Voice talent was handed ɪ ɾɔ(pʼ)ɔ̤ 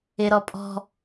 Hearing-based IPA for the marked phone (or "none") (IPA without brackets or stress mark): pʼ